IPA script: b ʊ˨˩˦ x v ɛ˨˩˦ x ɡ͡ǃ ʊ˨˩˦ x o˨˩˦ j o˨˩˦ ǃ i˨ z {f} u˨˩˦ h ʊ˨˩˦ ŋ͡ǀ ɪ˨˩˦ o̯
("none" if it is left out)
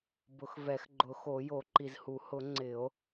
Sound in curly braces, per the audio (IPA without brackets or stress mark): h